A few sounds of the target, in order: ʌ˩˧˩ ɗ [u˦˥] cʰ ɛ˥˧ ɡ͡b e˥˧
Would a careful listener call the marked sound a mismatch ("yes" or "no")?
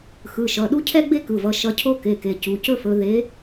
no